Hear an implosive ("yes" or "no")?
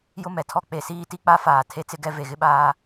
yes